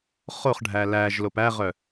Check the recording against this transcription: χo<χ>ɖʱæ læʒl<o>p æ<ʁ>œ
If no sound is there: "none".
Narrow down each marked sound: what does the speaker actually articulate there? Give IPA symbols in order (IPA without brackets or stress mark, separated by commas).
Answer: χ, o, ʁ